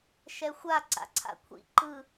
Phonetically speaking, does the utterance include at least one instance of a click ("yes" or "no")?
yes